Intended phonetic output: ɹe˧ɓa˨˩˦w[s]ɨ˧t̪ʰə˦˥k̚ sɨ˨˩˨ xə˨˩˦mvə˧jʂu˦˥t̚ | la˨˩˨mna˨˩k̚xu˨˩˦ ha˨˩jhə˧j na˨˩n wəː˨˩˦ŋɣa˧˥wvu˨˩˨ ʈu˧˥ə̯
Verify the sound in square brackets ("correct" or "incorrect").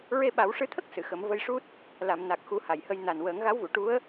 incorrect